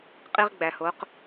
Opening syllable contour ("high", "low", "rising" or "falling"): high